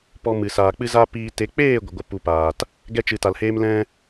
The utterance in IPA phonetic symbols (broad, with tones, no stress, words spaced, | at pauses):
pɔ˧mɨ˨ saː˨k͡pɨ˦za˦ piː˧ te˨˦k͡peː˦˨ ɡʷə˨ɡʷə˧ pu˧paː˨t | ɡɛ˧t͡ʃɨ˨ta˨lheː˧m lɛ̃˦